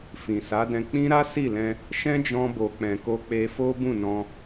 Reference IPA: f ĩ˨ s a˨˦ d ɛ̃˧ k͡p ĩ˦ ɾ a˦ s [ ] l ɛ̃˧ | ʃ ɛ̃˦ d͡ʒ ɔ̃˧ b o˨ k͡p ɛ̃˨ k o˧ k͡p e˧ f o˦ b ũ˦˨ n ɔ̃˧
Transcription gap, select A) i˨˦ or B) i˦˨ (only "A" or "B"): B